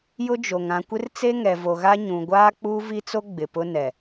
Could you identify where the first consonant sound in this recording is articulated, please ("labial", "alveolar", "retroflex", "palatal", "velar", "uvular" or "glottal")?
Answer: palatal